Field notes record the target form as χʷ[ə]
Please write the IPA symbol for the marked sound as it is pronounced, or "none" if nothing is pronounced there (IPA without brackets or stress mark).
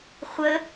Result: ə